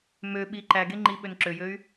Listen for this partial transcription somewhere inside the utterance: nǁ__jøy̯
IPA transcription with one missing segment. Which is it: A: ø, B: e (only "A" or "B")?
A